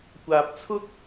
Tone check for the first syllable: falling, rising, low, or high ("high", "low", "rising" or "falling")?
low